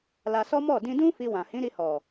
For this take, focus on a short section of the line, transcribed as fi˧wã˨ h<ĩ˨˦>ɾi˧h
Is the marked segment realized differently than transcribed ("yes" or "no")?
no